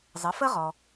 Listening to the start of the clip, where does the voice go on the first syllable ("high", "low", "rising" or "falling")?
rising